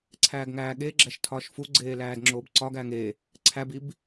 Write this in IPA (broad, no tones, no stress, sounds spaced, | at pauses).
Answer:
ǀʰ æː ɡ ŋ æː ɠ e ɡ͡ǁ æ ʃ tʰ ɒː ʃ f u ɡ͡ǀ eː l æː d ŋ͡ǁ oː b ǀ ɒ ɡ æː ŋ e | ǀʰ æ b i b